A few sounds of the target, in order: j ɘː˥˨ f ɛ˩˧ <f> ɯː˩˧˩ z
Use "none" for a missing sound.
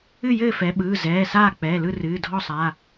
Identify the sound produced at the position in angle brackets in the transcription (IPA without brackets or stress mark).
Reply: ɓ